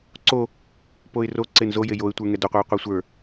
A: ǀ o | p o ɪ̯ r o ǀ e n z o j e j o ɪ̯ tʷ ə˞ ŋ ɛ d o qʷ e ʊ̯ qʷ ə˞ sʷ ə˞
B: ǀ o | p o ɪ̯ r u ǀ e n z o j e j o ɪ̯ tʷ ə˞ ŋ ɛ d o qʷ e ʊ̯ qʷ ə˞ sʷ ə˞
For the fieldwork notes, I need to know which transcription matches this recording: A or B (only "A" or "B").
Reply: A